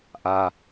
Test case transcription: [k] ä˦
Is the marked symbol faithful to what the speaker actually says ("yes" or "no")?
no